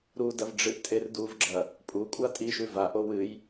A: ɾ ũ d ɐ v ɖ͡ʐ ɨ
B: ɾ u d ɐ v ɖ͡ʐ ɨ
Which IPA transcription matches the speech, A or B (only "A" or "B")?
B